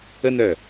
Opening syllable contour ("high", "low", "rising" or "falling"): high